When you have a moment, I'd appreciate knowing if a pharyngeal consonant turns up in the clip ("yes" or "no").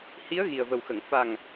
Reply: no